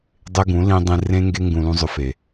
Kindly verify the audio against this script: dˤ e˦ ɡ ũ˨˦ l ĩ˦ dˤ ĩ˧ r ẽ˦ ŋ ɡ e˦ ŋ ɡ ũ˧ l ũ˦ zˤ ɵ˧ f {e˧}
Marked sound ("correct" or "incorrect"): incorrect